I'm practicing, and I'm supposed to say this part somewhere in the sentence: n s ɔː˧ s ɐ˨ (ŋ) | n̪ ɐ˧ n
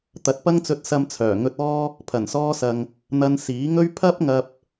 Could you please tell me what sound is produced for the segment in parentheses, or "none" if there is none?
ŋ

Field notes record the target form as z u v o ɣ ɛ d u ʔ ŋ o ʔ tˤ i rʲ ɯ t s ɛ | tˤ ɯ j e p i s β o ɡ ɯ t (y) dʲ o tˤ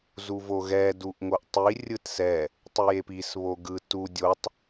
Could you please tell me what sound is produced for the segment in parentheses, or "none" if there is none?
u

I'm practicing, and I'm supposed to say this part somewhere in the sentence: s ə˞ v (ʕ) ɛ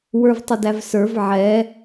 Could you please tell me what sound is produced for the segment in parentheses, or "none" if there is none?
ʕ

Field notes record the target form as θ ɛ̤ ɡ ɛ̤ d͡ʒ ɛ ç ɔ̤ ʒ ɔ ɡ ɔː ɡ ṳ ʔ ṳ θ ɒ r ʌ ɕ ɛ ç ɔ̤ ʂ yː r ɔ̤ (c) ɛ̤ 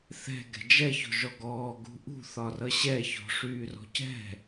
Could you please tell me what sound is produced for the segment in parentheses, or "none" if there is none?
c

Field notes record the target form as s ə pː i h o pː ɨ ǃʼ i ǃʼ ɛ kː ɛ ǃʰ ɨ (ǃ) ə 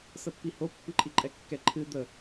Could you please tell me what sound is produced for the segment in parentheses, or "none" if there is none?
d̪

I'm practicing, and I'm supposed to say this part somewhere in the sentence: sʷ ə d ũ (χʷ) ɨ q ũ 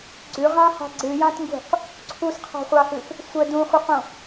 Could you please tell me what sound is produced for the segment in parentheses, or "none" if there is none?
χʷ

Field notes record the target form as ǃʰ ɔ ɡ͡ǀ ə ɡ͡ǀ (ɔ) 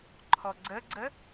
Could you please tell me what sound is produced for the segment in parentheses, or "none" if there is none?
ə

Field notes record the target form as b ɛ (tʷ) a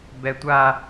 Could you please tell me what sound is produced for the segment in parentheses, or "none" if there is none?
tʷ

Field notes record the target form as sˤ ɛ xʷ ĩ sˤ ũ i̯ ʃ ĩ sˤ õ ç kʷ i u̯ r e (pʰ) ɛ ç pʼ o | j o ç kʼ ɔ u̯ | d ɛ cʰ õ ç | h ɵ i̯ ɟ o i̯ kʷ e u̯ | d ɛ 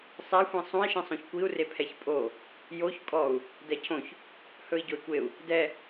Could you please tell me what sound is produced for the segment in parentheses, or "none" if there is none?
pʰ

